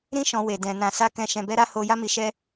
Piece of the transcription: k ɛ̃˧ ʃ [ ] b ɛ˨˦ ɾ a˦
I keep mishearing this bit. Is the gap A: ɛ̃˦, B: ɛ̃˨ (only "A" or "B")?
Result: B